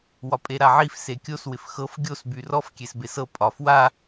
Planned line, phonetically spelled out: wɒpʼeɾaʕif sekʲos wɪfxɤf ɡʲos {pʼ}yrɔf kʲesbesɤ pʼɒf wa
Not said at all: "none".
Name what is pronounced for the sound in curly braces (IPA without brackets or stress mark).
b